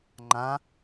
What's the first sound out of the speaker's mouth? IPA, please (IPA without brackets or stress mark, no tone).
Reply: ŋ͡ǃ